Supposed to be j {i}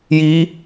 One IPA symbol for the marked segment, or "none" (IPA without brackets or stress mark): i